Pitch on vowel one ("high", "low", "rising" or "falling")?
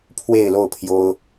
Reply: falling